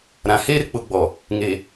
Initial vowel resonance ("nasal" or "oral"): nasal